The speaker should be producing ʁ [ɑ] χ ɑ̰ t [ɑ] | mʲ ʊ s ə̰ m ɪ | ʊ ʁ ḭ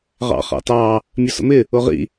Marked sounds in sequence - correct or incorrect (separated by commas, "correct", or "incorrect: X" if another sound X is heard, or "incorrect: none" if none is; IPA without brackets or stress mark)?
incorrect: ɑ̰, correct